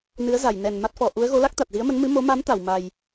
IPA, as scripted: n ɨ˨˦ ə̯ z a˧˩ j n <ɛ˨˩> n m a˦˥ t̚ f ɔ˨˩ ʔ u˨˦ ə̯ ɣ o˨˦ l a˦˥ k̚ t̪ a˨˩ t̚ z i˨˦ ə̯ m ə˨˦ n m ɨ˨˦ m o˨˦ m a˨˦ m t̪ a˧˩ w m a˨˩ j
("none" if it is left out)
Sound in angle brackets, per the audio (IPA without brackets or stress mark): ɛ˨˩